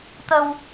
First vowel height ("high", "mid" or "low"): mid